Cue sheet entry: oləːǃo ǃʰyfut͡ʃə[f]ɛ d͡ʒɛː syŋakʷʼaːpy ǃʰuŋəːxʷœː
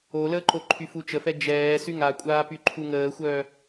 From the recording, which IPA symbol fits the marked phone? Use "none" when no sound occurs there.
f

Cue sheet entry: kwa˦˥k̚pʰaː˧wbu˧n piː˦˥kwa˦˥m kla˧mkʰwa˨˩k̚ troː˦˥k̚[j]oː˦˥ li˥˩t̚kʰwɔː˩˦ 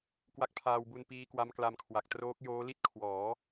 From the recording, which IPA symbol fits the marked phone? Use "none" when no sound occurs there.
j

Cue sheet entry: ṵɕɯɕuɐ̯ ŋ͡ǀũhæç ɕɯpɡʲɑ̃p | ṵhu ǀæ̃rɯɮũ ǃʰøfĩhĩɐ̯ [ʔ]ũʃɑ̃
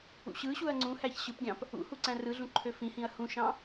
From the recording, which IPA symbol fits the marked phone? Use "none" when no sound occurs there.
h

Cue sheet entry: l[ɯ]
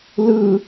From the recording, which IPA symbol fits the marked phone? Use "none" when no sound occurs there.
ɯ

